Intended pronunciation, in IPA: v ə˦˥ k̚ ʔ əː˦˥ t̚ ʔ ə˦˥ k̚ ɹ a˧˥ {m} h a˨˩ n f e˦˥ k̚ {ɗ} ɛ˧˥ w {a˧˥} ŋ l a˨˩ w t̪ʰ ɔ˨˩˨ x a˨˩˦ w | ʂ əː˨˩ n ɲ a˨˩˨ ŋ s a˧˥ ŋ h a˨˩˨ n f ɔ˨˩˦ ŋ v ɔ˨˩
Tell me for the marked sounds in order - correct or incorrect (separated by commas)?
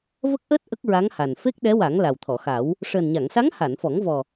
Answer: incorrect, correct, incorrect